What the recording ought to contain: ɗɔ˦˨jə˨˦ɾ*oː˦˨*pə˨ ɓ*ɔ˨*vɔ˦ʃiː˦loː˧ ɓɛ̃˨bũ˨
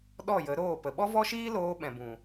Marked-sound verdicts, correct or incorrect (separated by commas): correct, incorrect